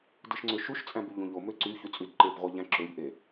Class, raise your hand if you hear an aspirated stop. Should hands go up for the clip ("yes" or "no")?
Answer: no